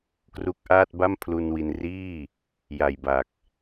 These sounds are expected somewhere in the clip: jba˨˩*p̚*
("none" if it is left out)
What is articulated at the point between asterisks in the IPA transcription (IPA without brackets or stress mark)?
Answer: k̚